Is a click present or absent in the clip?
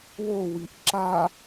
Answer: present